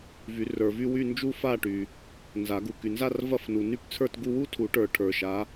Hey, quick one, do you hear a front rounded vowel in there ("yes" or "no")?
yes